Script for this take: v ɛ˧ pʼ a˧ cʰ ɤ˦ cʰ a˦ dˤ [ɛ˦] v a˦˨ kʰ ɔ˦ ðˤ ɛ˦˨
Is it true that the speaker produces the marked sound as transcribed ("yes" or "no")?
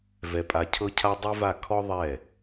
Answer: no